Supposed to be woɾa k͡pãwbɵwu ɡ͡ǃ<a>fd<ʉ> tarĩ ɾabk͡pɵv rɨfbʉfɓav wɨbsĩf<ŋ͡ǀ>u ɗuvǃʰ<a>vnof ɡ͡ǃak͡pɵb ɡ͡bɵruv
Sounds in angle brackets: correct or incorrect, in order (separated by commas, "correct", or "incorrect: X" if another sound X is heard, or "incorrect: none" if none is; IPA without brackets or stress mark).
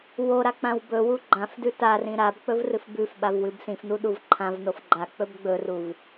incorrect: ã, correct, incorrect: n, incorrect: ã